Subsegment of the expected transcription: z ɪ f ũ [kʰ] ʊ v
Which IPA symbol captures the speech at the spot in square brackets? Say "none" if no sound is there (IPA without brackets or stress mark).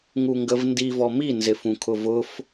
kʰ